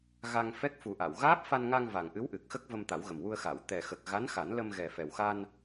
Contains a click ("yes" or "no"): no